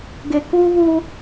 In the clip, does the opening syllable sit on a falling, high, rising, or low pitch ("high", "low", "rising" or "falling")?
low